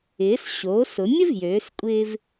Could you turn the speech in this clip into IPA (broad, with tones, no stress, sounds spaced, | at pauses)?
ɪː˩˧ s ɕ oː˩˧ s ʊ˩˧ mʲ ə˥ v j øː˩˧ s kʷʼ ɪː˧ v